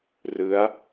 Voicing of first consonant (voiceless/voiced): voiced